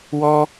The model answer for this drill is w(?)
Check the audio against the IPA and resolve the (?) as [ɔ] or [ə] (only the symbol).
ɔ